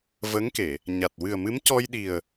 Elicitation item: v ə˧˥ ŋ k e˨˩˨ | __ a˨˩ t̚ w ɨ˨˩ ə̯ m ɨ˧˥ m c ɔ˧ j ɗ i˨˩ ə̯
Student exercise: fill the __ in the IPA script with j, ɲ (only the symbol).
ɲ